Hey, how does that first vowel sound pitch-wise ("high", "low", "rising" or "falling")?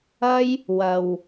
high